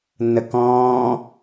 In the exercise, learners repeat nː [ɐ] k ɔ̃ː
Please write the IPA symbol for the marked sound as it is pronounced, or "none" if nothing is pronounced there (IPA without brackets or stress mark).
ə